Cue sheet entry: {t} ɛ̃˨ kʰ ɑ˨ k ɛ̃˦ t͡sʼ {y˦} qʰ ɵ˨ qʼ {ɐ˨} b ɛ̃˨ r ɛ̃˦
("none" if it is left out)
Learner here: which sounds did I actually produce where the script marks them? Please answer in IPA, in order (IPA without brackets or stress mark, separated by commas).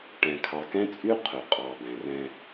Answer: ʈ, y˦, ɑ˨